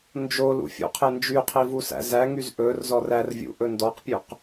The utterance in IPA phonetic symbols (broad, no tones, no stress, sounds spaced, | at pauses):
n d͡ʒ o l ṵ fʲ ṵ qʰ e n d͡ʒ y qʰ i v u s æ̰ z æ ŋ y z ʔ ɵ r z ɔ r æ r vʲ ṵ ʔ ɵ n d ɔ q pʲ ʉ q